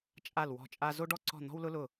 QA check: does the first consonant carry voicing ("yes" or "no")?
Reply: no